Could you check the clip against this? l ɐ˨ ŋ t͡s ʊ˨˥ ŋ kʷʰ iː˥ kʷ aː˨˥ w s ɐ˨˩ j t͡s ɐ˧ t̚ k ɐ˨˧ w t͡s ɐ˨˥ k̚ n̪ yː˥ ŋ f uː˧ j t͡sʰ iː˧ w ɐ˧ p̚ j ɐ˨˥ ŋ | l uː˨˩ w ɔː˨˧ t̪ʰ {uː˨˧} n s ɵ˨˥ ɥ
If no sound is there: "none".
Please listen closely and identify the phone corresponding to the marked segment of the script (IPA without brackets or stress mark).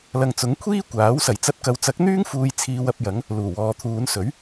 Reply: uː˨˧